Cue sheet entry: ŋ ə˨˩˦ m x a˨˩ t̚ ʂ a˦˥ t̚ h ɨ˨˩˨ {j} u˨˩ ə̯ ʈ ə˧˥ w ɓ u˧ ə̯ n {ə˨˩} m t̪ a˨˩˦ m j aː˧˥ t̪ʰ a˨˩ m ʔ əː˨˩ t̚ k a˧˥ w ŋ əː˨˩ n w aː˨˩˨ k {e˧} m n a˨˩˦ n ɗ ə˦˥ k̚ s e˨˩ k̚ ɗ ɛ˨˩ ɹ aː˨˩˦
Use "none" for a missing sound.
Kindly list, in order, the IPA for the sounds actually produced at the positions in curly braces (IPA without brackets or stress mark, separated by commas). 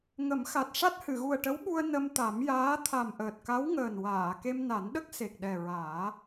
ɣ, ə˧, e˧